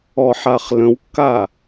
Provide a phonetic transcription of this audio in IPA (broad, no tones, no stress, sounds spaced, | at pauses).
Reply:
ɔ ħ a χ l ə̃ w kː a